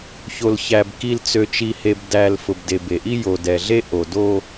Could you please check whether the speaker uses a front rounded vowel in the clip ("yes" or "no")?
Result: yes